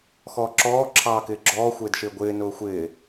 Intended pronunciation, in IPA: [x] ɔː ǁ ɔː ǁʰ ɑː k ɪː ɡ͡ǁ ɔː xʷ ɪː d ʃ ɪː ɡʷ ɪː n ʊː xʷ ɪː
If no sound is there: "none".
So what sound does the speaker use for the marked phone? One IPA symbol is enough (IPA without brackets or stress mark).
x